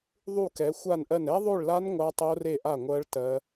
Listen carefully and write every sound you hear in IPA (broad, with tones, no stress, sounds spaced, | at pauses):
ðˤ u˥˨ k ɛ˨˦ xʷ a˥˨ n ʔ ɜ˥˨ n ɛ˦˥ ðˤ o˥˨ ɭ l a˦˥ n ŋʷ a˦˥ tˤ o˦˥ r e˥˨ ʔ a˥˨ ŋʷ ɜ˦˥ ɭ t ɜ˦˥